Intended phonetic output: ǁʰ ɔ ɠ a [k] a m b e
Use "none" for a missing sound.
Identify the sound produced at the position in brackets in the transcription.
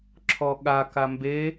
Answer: k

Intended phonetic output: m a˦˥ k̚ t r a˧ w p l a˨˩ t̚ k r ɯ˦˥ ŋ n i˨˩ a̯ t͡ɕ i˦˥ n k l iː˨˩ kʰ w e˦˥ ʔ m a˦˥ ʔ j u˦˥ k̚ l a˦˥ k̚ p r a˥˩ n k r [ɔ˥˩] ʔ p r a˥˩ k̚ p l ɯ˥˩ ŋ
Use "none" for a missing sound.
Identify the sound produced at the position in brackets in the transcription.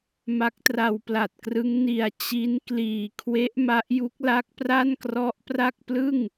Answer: ɔ˦˥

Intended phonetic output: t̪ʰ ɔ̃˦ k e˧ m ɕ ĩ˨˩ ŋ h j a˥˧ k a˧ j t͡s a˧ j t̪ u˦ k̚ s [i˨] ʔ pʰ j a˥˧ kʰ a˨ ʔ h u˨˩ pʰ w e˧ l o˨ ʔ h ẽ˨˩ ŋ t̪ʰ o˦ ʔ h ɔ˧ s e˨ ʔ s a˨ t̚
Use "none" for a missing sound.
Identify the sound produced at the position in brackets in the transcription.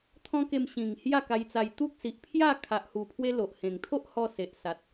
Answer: i˨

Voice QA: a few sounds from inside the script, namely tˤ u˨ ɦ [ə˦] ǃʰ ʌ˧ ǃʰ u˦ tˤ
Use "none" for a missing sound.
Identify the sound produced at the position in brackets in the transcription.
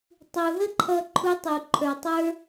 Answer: ə˦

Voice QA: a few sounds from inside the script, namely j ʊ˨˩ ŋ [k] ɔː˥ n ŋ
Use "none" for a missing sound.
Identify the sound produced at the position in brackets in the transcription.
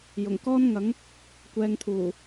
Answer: k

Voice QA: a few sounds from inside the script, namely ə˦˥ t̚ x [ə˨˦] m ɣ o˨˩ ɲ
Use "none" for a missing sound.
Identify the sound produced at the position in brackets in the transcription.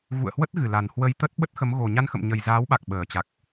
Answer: ə˨˦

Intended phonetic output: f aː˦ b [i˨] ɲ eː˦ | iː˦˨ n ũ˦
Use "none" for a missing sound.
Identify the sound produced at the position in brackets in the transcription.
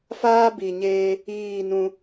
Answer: i˨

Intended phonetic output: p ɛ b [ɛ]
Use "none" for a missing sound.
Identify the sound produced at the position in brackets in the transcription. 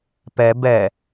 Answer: ɛ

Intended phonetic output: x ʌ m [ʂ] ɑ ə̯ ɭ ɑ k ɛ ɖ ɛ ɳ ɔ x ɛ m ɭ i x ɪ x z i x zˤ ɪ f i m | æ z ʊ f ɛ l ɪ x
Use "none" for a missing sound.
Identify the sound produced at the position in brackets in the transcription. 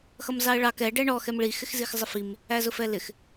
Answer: z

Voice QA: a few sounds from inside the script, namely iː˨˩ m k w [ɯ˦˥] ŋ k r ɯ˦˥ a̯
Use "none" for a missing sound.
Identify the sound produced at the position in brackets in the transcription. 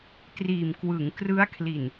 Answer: ɯ˩˦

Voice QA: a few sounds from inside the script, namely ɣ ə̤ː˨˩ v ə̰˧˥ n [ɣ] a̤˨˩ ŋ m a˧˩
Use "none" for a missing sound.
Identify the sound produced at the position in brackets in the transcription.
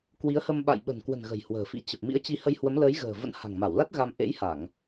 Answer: h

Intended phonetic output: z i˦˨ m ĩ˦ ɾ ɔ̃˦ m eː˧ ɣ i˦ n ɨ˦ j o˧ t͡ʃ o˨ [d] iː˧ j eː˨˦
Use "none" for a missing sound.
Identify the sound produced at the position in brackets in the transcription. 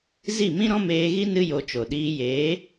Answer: ɗ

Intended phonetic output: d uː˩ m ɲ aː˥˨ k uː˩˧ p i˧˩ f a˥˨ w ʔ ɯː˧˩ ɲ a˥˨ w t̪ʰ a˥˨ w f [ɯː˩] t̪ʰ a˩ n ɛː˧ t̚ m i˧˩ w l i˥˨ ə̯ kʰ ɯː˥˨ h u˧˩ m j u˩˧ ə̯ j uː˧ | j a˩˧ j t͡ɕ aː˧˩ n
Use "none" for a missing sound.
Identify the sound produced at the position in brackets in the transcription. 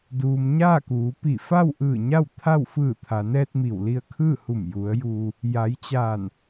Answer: ɯː˧˩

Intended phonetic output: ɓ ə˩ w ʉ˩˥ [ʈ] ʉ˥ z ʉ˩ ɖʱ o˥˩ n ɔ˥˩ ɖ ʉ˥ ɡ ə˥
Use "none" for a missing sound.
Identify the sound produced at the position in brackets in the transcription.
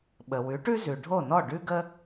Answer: ʈ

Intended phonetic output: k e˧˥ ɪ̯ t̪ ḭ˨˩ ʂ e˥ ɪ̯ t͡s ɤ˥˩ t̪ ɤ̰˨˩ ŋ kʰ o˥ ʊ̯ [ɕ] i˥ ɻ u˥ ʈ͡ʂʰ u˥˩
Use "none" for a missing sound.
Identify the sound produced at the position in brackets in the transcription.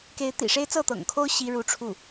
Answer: ɕ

